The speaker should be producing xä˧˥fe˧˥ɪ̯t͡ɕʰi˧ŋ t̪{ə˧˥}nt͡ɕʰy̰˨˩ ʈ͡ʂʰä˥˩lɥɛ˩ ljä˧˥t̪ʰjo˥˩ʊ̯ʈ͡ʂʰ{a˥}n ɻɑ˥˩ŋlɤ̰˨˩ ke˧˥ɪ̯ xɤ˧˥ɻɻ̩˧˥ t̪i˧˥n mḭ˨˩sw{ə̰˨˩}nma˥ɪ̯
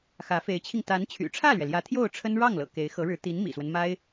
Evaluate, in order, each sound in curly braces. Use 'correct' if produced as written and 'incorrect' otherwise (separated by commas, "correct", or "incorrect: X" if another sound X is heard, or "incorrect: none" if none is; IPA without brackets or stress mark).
incorrect: a˧˥, incorrect: ə˥, incorrect: ə˦